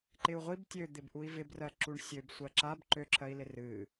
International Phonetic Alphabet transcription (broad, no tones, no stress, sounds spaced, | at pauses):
ǃ ɪ u̯ ʁʷ i b tʲ ø d̪ ɪ b ʔ u i̯ v ɪ b r ɜ ǁ u ɳ sʲ ø b sʷ ɜ ǁ a b ǃ ø ǁʰ ɜ i̯ l ɪ r ɨ